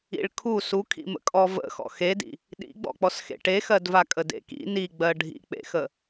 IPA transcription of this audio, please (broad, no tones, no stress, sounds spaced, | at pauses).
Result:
ḭ ɭ kʰ u s u kʰ ḭ m ə̰ kʼ ɔ v ə̰ x ɔ̰ x e d ḭ | ɗ ḭ ɡ͡b ɔ̰ k͡p ɔ s x ḛ ʈ e x ɜ d v a kʼ ə d ḛ k ḭ n i ɡ͡b ɜ ɖʱ ḭ k͡p ḛ x ə